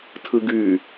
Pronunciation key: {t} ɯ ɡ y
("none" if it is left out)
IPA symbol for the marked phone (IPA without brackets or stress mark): tʰ